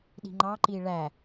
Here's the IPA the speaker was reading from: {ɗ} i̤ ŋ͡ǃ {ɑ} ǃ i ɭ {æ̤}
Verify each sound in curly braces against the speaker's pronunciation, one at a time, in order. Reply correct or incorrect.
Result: correct, correct, incorrect: æ

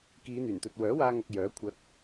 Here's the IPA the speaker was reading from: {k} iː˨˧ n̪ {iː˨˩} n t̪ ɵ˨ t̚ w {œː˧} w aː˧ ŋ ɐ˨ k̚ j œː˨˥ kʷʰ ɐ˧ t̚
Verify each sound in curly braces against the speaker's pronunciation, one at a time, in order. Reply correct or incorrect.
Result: correct, incorrect: yː˨˩, incorrect: œː˨˥

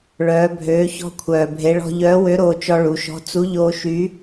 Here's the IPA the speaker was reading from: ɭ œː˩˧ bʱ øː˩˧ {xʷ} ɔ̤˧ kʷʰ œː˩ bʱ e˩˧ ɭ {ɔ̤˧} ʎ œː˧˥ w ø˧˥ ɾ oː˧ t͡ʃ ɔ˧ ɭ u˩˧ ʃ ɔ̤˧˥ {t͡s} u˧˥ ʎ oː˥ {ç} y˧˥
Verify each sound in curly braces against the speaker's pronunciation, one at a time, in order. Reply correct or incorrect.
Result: incorrect: ç, correct, correct, incorrect: ʃ

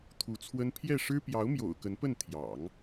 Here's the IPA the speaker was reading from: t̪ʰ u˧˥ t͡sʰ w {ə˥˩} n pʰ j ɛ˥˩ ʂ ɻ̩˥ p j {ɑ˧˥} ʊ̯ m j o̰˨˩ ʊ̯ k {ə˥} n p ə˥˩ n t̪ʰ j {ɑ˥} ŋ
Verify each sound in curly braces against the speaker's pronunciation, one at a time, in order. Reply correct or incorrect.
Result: incorrect: ə˥, correct, incorrect: ə˧˥, incorrect: ɑ̰˨˩˦

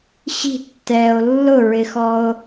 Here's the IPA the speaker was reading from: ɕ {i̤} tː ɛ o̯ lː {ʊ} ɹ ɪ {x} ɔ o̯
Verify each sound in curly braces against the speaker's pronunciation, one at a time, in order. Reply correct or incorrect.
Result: correct, correct, correct

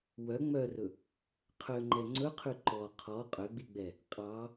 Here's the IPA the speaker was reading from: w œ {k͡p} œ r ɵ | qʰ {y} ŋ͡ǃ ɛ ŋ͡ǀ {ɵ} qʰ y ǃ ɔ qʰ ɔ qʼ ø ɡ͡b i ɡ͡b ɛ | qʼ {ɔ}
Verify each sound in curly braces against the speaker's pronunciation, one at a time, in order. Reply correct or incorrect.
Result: incorrect: ŋ͡m, incorrect: ø, correct, incorrect: ɑ

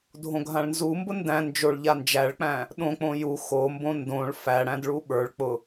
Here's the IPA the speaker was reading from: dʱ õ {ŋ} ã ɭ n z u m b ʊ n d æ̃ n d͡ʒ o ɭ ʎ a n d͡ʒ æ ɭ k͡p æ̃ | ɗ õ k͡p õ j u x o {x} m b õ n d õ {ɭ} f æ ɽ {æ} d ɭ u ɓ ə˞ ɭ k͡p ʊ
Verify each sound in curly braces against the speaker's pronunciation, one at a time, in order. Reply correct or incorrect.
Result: incorrect: ɡʱ, incorrect: none, correct, incorrect: æ̃

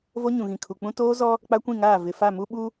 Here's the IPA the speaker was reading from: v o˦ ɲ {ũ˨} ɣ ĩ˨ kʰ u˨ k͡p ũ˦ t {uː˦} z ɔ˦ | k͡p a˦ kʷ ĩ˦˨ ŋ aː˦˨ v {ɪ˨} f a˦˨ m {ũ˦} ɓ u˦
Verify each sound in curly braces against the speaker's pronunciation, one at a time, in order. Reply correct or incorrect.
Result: correct, incorrect: oː˦, correct, incorrect: u˦

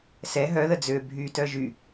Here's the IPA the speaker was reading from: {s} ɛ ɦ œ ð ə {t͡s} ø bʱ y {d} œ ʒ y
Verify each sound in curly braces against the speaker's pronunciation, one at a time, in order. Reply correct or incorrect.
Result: correct, incorrect: d͡z, incorrect: t

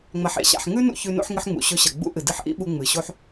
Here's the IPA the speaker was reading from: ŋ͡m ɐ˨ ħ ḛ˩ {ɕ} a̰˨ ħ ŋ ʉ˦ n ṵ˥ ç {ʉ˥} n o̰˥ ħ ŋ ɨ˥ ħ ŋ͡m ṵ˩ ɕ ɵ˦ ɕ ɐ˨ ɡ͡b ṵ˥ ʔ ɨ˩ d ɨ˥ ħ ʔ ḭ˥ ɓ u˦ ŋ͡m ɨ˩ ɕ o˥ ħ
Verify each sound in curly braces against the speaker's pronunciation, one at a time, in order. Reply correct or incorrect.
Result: correct, incorrect: ʉ˦

